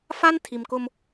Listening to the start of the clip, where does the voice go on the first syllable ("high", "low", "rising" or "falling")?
high